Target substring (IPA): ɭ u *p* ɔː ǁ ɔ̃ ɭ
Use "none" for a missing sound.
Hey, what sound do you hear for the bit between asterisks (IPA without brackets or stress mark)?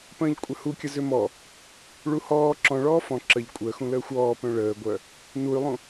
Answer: h